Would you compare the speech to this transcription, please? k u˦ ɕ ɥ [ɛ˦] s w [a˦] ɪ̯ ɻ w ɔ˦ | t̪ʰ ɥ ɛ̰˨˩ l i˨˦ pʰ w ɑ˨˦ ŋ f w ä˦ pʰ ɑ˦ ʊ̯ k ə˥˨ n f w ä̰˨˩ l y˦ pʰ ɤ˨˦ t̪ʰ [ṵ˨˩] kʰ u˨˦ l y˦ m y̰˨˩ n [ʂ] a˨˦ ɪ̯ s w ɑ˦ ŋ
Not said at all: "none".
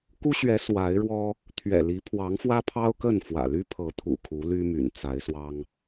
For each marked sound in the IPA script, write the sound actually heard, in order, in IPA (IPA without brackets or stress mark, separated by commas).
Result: ɛ˨˦, a˨˦, ṵ˨˩, t͡s